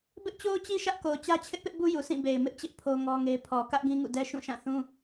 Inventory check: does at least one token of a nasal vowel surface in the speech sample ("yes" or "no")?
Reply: yes